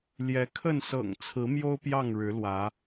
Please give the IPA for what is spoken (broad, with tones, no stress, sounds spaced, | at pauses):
l j ɛ˨˦ kʰ ə˥˨ n s ɤ̰˨˩ ŋ t͡sʰ ɹ̩˨˦ m j o˦ ʊ̯ p j ɑ˥˨ ŋ ɻ ɻ̩˨˦ l w ä˨˦